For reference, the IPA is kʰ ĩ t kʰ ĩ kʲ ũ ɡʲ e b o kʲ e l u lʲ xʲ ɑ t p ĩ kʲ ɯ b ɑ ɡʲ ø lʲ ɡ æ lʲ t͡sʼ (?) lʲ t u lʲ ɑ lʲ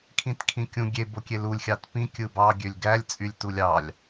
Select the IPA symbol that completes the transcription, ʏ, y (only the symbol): y